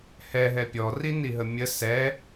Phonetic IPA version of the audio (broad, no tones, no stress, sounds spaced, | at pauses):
h ɛ ɦ ɛ pʲ ɔ r i n i ɦ ə mʲ ə s ɛ